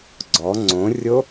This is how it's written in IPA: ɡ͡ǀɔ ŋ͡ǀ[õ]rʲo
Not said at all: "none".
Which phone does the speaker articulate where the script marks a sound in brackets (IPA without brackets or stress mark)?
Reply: õ